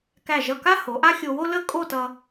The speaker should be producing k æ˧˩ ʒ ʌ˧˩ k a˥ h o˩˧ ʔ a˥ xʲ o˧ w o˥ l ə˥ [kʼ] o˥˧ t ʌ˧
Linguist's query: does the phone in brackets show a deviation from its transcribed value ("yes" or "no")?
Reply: no